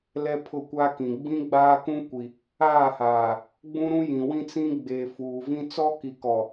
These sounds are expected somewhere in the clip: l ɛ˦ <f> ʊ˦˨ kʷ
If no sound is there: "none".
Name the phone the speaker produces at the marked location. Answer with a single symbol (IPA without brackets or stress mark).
pʰ